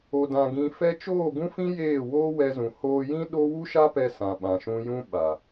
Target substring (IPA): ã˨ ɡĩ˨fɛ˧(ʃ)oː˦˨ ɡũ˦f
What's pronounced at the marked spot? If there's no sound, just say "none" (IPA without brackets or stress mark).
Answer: t͡ʃ